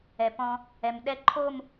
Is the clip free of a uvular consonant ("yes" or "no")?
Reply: yes